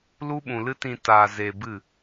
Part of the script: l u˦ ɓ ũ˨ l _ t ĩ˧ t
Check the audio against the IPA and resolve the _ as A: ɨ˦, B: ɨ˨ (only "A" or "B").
A